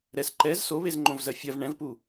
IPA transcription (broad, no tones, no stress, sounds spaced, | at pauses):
ɾ ɛ s ǃ ɛ z s o β e z ŋ͡ǃ õ v z ɜ fʲ ɜ v ɳ ɛ̃ v p u